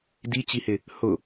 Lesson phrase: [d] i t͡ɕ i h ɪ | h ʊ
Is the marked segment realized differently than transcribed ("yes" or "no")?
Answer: no